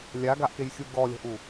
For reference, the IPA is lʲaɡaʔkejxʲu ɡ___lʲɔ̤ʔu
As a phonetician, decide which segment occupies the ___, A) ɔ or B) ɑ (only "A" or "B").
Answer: A